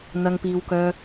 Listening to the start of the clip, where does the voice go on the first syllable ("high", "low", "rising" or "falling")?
low